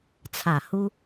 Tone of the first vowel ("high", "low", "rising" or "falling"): falling